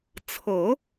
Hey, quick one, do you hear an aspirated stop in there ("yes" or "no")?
yes